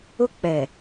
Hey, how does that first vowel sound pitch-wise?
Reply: high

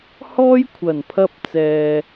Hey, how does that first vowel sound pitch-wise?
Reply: high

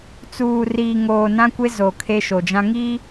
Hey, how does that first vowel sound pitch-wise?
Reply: low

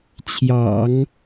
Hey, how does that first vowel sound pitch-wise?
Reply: low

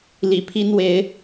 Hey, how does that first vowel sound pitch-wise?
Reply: low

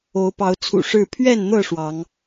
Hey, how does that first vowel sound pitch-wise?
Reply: rising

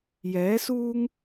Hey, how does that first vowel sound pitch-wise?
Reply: rising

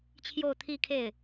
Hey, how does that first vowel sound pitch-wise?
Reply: falling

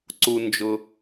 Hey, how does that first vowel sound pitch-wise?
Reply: low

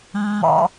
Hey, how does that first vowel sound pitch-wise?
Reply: low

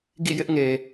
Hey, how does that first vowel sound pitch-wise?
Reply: falling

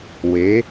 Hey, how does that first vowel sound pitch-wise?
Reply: rising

